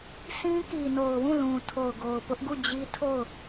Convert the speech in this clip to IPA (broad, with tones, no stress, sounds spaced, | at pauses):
s ĩ˦ k i˨ n o˨ ʊ̯ w ũ˦˨ l ũ˨ tʰ o˨ ʊ̯ ɡ o˨ ʊ̯ p ʊ˦ ʔ ɡ u˦˨ d͡ʑ i˦ tʰ o˦˨ ʊ̯